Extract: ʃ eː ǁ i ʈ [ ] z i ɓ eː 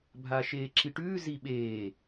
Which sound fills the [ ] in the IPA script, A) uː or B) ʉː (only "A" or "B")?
B